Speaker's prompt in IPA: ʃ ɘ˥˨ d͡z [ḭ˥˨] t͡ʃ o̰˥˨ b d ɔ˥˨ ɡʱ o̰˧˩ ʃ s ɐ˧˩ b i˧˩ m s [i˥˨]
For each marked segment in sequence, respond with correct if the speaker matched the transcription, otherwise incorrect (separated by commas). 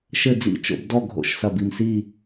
correct, correct